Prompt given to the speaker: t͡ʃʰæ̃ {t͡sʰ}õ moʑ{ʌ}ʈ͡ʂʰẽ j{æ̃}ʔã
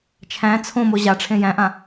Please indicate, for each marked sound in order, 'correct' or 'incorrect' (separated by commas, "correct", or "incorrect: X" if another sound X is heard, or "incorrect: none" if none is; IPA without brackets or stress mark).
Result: correct, incorrect: a, correct